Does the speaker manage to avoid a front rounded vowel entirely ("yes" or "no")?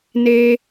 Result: yes